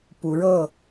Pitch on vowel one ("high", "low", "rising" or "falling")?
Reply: rising